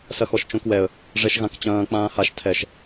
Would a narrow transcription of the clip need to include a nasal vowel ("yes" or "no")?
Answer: yes